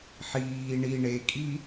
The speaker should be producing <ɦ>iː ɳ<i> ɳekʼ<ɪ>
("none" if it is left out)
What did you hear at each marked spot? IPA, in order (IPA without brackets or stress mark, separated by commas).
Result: ħ, i, i